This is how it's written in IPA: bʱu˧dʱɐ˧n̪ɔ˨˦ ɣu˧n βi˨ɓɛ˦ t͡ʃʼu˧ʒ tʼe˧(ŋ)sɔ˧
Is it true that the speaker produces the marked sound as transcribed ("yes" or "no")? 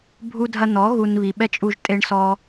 no